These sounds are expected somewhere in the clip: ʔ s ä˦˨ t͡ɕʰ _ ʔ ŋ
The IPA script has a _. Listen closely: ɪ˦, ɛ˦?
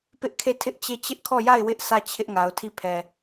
ɪ˦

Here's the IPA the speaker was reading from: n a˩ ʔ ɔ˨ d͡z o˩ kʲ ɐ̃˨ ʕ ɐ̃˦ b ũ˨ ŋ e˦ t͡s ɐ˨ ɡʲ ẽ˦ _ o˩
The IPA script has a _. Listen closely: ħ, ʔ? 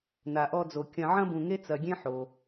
ħ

